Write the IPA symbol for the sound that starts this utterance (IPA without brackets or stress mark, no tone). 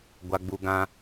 ɡʷ